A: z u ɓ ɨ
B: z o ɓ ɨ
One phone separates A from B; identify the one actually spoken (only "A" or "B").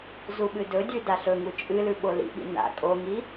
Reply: A